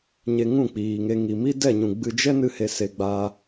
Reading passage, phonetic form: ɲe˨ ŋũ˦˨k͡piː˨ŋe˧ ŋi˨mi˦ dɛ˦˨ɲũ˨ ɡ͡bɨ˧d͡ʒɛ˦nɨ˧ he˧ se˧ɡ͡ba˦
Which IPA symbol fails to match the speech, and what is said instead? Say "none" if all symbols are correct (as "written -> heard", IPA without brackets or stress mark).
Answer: none